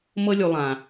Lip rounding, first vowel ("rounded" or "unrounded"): unrounded